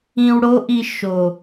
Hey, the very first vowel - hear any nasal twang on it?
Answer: yes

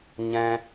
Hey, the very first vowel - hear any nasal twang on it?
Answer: yes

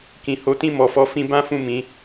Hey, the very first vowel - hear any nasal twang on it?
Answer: yes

